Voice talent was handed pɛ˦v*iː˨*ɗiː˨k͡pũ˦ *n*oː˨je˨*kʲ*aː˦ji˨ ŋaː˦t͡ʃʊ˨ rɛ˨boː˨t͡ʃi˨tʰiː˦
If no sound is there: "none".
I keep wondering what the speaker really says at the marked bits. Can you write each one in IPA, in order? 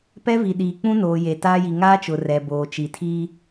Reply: i˨, n, t

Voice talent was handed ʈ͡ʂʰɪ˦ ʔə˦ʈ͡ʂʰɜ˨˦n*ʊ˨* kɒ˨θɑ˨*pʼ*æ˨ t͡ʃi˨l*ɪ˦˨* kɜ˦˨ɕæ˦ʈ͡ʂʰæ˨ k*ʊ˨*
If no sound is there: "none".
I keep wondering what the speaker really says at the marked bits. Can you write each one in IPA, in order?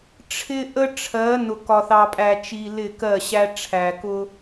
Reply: ʊ˨, pʼ, ɪ˦˨, ʊ˦

